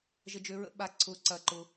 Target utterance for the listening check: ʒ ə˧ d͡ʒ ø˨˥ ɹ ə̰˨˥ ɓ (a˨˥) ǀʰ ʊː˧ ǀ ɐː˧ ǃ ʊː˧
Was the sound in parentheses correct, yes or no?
yes